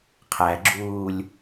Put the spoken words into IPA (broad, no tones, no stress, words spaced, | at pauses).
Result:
qʰæɡ͡ǁuːlʲ